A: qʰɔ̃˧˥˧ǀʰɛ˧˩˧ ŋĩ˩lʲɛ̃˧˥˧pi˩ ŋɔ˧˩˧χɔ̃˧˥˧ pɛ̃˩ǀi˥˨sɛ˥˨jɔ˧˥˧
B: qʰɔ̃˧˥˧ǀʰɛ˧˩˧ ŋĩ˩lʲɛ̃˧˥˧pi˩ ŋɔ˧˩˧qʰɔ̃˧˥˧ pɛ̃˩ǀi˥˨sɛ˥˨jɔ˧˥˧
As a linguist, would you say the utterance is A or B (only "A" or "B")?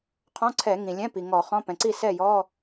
A